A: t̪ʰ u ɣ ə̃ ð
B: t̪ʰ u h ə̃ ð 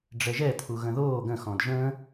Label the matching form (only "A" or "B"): A